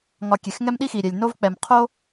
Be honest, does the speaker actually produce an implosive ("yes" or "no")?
yes